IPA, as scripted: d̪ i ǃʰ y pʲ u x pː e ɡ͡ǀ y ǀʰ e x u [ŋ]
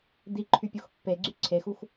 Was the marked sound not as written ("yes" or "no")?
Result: yes